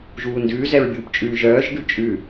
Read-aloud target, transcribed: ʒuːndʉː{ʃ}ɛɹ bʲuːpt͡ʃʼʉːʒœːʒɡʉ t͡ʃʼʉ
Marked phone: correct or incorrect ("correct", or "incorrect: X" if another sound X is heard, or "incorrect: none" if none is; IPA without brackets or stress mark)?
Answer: incorrect: z